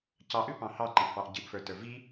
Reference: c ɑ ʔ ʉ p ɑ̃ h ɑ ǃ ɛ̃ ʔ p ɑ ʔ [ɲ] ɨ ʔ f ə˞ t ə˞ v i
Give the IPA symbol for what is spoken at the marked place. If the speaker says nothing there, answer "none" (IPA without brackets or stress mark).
ɟ